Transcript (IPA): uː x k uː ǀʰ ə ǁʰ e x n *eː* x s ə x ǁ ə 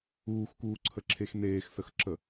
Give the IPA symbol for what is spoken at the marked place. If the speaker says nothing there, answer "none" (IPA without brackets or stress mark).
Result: eː